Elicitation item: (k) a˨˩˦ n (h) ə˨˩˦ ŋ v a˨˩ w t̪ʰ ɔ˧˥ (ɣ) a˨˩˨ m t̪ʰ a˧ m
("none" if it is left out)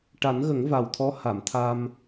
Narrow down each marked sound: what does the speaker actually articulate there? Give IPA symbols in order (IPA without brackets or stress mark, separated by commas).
ʈ, ɣ, h